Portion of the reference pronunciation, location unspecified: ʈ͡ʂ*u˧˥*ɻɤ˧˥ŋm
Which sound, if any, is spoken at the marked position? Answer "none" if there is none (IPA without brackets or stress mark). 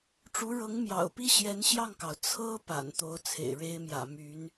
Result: u˧˥